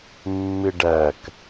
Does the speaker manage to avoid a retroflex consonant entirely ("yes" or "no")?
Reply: no